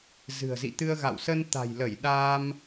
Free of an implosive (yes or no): no